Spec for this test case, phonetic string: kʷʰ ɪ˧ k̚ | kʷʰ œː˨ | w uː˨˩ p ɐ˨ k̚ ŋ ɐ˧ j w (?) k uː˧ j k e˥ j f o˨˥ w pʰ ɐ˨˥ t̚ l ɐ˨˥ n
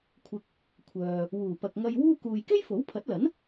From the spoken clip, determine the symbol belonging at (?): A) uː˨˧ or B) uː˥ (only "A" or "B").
B